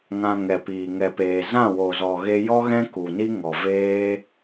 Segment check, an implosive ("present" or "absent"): absent